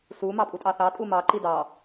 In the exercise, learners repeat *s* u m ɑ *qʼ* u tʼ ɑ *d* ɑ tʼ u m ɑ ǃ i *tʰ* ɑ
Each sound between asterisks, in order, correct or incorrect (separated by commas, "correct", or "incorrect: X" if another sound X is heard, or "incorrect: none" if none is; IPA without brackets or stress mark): correct, incorrect: pʼ, incorrect: θ, incorrect: d